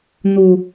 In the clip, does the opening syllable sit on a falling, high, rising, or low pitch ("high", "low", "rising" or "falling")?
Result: low